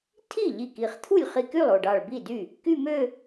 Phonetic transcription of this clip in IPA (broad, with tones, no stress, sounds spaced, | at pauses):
tʰ i˥˩ ʎ i˧˩ k i˧˩ χ t̪ʰ u˥˩ lʲ χ i˧˩ k y˥˩ lˠ o˧˩ ɖ ɑ˧˩ ɭ b i˥˩ d y˥˩ | k y˥˧ m ø˥˧